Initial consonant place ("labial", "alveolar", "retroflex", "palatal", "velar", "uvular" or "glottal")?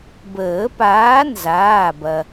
labial